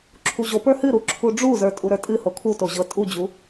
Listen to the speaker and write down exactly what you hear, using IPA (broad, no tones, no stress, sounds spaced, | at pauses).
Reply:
ǁʰ u ʑ o p ə˞ h ɨ ɾ u ǁʰ u ɖ͡ʐ u z ə˞ tʼ u ɾ ə˞ tʼ ɨ h o kʰ u t o ʑ ɤ tʼ u d͡ʑ u